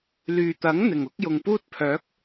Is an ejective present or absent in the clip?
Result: absent